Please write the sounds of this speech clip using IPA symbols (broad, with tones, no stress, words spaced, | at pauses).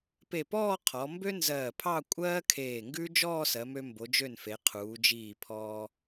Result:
pe˧˩pɔː˥˧ qʰɔ˩˧ mbø˥nzɜː˧˩pʰɑ˥˧ kʷʼɜː˥kʰeː˧˩ŋɡʉ˥ d͡ʒɔː˥˧sɜ˩˧mø˧ mbo˩˧d͡ʒø˧˩nfe˩˧ qʰuː˩˧d͡ʒiː˧˩ pʰɔː˧